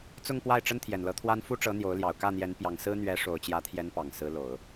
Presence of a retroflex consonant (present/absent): present